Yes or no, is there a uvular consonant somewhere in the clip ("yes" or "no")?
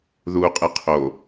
yes